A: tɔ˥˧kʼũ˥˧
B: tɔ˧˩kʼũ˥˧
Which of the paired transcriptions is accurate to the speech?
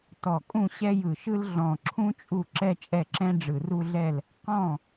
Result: B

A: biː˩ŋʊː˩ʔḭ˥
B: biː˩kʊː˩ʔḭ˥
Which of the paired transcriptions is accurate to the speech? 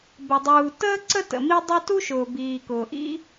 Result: B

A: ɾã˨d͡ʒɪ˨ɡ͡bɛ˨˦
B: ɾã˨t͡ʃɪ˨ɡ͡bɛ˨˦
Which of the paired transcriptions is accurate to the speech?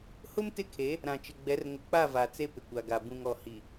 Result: B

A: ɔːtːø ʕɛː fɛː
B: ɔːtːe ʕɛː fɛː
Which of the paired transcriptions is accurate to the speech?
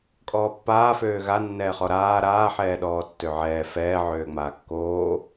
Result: A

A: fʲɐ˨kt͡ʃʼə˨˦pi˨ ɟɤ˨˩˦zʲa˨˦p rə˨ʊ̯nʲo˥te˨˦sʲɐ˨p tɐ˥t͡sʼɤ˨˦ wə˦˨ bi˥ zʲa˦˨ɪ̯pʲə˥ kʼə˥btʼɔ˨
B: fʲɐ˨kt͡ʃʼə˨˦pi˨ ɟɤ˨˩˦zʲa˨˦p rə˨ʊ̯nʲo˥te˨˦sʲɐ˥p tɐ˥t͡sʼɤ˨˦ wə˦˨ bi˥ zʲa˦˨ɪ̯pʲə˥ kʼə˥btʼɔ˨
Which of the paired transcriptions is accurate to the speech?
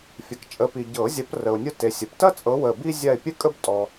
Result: A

